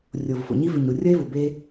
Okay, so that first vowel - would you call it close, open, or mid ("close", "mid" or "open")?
mid